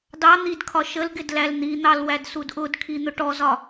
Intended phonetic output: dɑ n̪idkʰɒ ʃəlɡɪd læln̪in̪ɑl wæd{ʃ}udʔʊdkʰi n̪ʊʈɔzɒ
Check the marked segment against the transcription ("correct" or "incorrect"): incorrect